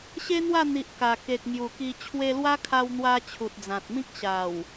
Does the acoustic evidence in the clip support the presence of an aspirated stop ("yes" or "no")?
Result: yes